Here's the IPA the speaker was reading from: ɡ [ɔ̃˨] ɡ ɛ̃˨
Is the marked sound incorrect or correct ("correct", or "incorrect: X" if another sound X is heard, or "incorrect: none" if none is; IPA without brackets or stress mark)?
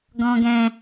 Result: correct